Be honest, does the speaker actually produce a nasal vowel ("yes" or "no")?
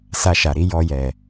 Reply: no